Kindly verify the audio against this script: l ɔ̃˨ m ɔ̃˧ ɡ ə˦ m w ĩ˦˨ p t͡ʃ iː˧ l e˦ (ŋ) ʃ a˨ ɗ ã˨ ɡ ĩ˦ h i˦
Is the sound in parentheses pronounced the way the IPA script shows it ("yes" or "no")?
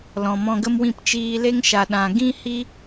yes